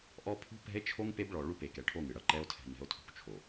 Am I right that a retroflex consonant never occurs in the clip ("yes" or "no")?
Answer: no